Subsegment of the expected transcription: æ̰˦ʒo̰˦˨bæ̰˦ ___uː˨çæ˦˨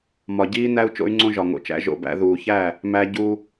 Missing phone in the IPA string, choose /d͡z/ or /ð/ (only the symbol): ð